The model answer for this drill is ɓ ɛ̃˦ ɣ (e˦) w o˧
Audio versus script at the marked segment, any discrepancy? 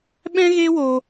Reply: no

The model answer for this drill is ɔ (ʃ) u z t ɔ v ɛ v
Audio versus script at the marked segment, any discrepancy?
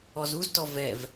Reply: yes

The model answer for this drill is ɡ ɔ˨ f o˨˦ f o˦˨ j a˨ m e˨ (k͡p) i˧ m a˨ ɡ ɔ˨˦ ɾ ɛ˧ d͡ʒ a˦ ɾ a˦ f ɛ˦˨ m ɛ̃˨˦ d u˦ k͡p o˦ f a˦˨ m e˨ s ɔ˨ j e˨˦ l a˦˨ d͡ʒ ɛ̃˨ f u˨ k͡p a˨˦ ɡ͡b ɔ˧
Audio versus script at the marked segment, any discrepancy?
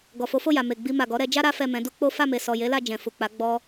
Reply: yes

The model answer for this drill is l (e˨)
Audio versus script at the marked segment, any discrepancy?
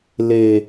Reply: no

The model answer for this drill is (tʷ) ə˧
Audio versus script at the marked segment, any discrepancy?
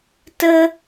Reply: yes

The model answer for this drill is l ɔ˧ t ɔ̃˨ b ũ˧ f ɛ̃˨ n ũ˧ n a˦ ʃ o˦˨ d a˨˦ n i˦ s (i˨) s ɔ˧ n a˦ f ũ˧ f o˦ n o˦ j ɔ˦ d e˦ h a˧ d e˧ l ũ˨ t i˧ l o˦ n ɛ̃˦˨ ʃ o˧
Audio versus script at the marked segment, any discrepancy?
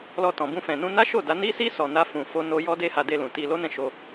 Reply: yes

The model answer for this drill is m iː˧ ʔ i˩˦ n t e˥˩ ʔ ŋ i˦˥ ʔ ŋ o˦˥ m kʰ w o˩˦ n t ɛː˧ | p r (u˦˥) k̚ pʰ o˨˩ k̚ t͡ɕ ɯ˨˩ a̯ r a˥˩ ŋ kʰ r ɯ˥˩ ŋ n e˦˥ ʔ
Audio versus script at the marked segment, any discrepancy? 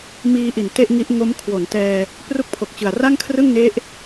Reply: no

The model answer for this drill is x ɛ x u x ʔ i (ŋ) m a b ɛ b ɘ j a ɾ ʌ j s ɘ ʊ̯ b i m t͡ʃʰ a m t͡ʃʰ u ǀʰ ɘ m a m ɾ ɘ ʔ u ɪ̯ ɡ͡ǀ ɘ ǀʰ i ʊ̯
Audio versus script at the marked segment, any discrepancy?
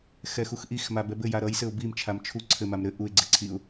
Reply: yes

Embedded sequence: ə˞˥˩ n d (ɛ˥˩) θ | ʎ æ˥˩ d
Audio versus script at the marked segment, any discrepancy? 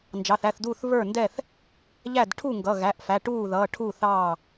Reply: no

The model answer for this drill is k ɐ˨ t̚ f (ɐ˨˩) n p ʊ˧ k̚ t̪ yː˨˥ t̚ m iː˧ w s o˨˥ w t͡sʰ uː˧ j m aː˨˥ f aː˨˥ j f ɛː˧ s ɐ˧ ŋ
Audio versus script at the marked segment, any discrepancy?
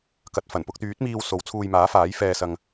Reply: no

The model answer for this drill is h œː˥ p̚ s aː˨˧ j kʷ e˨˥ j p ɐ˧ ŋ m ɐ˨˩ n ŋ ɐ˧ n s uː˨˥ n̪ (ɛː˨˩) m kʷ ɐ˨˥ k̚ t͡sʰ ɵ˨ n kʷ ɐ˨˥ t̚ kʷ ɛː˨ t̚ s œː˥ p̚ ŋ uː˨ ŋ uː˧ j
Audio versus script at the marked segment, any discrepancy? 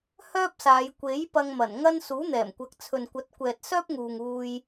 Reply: no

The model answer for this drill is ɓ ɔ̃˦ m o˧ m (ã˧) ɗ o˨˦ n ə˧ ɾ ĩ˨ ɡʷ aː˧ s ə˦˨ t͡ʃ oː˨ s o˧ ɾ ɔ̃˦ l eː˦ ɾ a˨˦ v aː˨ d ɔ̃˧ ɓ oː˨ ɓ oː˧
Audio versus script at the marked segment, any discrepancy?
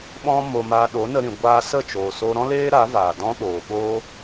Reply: yes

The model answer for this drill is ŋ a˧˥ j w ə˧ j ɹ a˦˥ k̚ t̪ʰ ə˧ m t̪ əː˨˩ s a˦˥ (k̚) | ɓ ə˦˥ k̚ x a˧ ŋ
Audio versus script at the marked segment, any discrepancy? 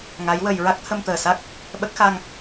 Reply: no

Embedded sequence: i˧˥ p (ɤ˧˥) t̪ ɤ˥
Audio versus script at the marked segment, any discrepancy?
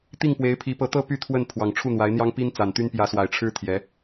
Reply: no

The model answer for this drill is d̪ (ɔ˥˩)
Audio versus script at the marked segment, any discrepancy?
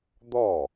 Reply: no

